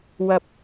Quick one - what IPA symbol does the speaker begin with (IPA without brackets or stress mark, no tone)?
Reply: w